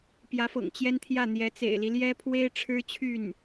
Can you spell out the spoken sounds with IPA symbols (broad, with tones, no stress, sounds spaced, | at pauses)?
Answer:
p j ä˧˥ f ɤ̰˨˩ ŋ t͡ɕ j ɛ˥ n t̪ʰ j ä˥˩ n̪ j ɛ˧˥ t͡s ḛ˨˩ ɪ̯ l i˦ l j ɛ˥ pʰ w e˥ ɪ̯ ʈ͡ʂʰ ɻ̩˥ t͡ɕʰ y˥˩ n